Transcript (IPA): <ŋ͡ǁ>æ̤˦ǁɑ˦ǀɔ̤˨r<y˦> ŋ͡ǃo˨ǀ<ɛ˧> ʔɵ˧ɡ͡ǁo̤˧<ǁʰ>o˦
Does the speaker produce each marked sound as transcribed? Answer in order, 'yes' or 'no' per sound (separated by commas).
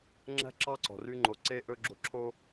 yes, no, no, yes